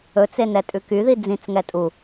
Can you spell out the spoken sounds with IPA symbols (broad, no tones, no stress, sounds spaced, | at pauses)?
ɵ t͡s e n ɛ tʼ ʉ k y ð i d͡z ĩ t͡s ŋ ɛ tʼ u